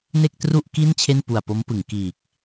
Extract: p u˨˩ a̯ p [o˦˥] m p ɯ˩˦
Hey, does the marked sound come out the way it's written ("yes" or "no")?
yes